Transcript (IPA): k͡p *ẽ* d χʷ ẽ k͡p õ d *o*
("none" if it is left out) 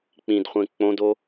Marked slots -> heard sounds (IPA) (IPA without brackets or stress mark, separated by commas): ĩ, o